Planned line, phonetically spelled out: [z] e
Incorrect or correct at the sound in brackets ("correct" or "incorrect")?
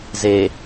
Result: correct